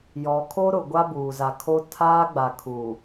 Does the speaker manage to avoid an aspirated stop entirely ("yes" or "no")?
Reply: no